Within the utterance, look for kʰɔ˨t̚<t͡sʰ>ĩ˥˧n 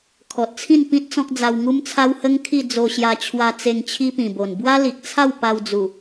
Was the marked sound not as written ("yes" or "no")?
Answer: no